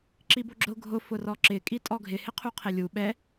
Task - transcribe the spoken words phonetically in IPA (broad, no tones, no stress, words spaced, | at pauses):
ǁiboɡ͡ǁʊ ɡʱʊ fʊrɔǁɪ kʼitʼɔɡʱɪ hɪqʰuqʰelʲu ɓɛ